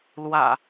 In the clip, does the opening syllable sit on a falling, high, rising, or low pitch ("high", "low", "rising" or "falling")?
low